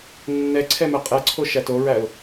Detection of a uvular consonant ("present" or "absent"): present